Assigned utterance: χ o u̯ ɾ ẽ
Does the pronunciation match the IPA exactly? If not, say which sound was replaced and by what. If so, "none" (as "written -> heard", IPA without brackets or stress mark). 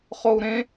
none